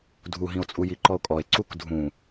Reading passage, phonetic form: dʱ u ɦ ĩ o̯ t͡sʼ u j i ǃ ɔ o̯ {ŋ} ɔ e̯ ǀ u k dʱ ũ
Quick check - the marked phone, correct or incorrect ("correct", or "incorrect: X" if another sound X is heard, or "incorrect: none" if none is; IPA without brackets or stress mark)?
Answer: incorrect: kʼ